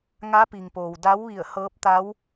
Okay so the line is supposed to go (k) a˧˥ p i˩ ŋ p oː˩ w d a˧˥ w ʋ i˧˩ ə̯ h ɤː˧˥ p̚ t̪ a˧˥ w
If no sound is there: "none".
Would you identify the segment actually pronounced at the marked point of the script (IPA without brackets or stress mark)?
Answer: ŋ